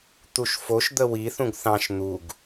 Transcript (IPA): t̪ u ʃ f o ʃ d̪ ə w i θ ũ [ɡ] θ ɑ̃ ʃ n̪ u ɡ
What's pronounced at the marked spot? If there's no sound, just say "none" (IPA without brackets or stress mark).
ɡ